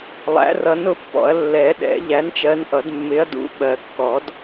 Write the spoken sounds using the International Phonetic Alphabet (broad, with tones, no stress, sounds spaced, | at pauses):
lˠ æ̰˨˥ r ʌ˨˥ n ʊ˨˥ pː ɔ̰˨˩˦ ɐ̯ lː ɛ˨˩˦ ɗ ɛ̰˨˩˦ ʎ æ˨˥ n t͡ʃ ɜ˨˥ n ʔ ʌ˨˩˦ d mː ɪ˨˥ ɐ̯ d ṵ˨˥ ɓ ɜ˨˩˦ kː ɔ˨˩˦ d